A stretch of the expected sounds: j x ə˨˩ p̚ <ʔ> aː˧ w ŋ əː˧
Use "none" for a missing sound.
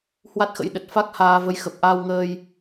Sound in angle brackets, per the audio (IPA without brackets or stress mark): ʔ